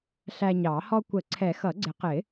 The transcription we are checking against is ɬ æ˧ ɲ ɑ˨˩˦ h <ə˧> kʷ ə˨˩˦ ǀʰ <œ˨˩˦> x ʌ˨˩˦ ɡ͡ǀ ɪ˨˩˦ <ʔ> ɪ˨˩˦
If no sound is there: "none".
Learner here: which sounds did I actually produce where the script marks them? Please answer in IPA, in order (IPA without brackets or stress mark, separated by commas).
ɔ˧, ɛ˨˩˦, q